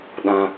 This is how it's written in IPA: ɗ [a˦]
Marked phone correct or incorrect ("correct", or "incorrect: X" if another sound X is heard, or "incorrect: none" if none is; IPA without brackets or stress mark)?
incorrect: ã˦